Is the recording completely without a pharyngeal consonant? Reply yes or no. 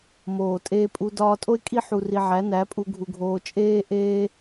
no